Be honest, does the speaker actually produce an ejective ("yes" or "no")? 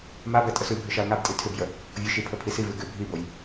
yes